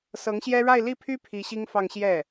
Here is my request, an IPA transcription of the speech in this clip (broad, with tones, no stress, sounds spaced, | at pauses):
s ɤ˧˥ ŋ ɕ j ɛ˥ ɻ a˥˧ ɪ̯ l i˥˩ pʰ y˥ pʰ i˧˥ ɕ i˥ ŋ f ɑ˥˧ ŋ ɕ j ɛ˥˩